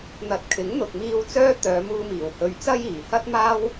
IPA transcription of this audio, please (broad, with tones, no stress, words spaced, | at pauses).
n̪ɐ˨t̚kʰɪ˨˥ŋ n̪ʊ˨k̚miː˧w t͡sœː˥t̪œː˨˧muː˧miː˨˩w hɵ˨ɥ t͡sɐ˥jiː˨˩hɐ˥t̚ maː˥w